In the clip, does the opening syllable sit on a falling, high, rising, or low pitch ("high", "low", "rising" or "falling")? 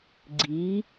rising